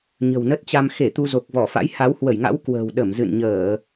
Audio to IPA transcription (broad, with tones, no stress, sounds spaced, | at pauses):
ɲ ə̤˨˩ w n ə˦˥ t̚ t͡ɕ a˧ m x e˧˩ t̪ u˧ z o˨˩ k̚ v ɔ˧˩ f a̰˧˥ j h a˨˦ w h w ə˧˩ j ŋ a̰˧˥ w k w ə̤ː˨˩ w ɗ ə˧˩ m z ɨ̰˧˨ n ɲ əː˧˩˨